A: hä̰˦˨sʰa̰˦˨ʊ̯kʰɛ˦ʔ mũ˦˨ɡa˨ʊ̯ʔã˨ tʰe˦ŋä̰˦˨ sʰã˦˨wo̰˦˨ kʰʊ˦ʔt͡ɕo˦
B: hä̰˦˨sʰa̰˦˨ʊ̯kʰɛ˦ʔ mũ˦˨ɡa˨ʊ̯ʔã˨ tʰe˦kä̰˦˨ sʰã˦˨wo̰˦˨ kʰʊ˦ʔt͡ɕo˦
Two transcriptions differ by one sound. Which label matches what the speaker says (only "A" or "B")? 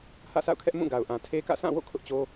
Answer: B